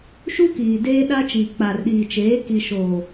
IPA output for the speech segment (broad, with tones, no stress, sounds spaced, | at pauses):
ʃ u˦ k iː˨ d eː˦ ɗ a˦ t͡ʃ iː˨ k͡p a˨ r ɗ iː˨ t͡ʃ eː˨˦ k i˨ ʃ o˨